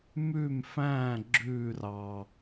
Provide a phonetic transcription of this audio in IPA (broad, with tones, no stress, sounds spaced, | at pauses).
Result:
m ʉ˥˨ m f æ̃˥˨ ɡ͡ǁ ʉ˥˨ r ɑ˨˩